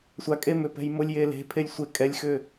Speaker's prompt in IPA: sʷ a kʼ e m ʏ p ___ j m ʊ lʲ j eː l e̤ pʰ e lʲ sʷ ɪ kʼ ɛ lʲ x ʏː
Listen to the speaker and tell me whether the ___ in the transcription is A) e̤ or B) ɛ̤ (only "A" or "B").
B